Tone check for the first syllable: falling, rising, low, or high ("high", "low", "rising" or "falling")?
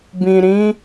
low